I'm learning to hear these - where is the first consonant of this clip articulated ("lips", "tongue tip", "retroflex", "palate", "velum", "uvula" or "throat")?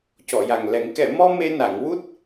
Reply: palate